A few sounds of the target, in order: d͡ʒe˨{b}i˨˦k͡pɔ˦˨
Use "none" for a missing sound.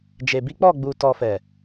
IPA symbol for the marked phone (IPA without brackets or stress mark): b